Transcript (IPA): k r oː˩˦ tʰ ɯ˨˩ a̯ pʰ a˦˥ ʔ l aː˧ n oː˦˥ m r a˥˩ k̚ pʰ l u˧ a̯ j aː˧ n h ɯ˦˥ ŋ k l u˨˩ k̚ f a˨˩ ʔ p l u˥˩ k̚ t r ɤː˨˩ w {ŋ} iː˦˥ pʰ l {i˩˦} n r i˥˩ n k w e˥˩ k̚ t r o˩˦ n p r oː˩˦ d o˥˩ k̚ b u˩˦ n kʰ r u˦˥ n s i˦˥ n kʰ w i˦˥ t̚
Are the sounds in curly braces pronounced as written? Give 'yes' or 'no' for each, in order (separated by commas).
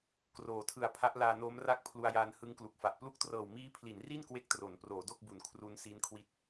no, yes